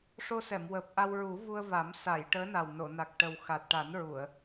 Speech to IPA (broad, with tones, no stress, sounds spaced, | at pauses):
ʂ o˧ s ɛ˨˩˨ m w əː˨˩ p̚ ʔ a˧ w ɹ u˨˩˦ v u˧ ə̯ v a˨˩˦ m s a˨˩˨ j ʈ əː˧˥ n a˨˩ w n o˨˩˨ n a˨˩ k̚ ʈ ə˨˩ w x a˨˩ t̚ ʈ a˨˩˦ n ɹ u˨˩˨ ə̯